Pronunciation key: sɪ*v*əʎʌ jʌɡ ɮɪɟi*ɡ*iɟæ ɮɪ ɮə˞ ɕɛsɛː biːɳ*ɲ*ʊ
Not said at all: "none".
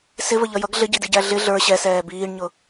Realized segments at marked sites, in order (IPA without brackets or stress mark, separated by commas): v, d, ɲ